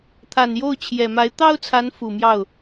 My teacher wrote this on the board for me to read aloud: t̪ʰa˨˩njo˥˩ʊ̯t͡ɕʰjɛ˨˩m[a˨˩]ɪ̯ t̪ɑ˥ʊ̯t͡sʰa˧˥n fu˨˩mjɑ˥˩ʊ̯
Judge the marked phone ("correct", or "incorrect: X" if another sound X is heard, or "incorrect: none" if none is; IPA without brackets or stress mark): incorrect: a˧˥